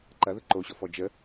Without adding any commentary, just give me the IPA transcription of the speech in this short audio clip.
ǃ ɐ ð ə ǃ o ɕ ɔ f ɔ d͡ʒ ə

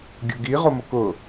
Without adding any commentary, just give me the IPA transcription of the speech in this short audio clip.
ɡʲ ʊ ɡ i ʁ o m ʊ k ʊ

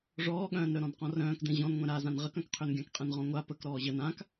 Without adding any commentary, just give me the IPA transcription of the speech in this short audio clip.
ʐ ɔː ɠ œ̃ː n ɾ œ ɾ ɔ̃ n q ɔ̃ r œ̃ː k d ɛ̃ ʑ ɔ̃ n ŋʷ ɛ̃ ɾ a z ã n ʁ ə k œ̃ k qʰ ø n ɡʲ ã k qʼ ɛ̃ n ʁ ɔ̃ ŋʷ a p ə k ɾ ɔː ʑ ə n ã k

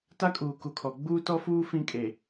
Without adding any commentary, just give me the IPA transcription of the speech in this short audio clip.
t a˦ kʼ uː˨ k u˨ kʰ ɔ˨ ɡ͡b uː˦ t ɔ˦ f uː˦ f ĩ˦ kʼ e˨

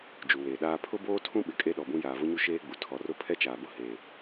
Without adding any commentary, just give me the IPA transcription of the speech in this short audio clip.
d͡ʒ u˨ w eː˨ ɗ aː˦ pʰ ʊ˦ b oː˦ tʰ ũ˦ ɓ ɪ˨ kʼ e˦ ɗ ɔ˨ b ũ˦ j aː˨ v ʊ˦ ɲ u˦ ʃ eː˦ ɡ͡b u˨ tʰ ɔ˨ r ʊ˦ pʰ ɛ˦ t͡ʃ aː˨ b ʊ˦ h eː˨

